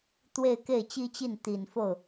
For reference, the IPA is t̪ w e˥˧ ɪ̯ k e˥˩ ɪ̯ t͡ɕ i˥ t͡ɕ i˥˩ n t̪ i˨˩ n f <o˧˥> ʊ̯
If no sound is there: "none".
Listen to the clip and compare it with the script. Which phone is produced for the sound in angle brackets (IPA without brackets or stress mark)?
o˥˩